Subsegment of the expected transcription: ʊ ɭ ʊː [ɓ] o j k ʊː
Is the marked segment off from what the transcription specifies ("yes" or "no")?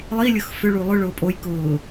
yes